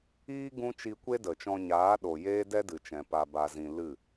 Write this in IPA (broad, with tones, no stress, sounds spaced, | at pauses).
iː˦ ɡ ũ˦ t͡ʃ i˧ kʷ e˦ d ə˨ t͡ʃ ɔ̃˧ ɲ aː˨˦ ɗ o˨ j eː˦ d ɛ˦ d ɨ˨ t͡ʃ ɛ̃˨ p a˨ b a˨ z ĩ˨ l ɨ˦˨